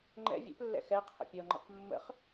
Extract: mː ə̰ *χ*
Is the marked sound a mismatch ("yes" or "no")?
no